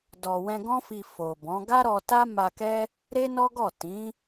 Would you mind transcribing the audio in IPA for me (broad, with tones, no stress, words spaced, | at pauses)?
dɔ˨ wɛ̃˧ɡɔ̃˦fi˧ fo˨bɔ̃˨˦ ɡa˦ɾɔ˧ta˦ ma˧kɛ˦ | ɾe˦nɔ˦ɡɔ˦˨ tĩ˨˦